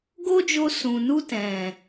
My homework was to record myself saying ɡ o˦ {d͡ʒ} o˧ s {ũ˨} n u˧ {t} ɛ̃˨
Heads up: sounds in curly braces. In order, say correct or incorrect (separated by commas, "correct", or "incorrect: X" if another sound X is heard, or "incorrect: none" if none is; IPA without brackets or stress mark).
correct, correct, correct